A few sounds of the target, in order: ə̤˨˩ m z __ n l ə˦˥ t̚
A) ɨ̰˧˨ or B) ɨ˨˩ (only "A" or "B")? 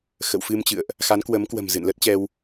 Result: A